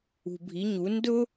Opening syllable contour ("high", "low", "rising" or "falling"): low